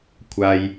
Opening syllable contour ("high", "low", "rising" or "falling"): low